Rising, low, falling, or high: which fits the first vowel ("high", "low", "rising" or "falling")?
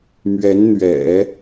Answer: rising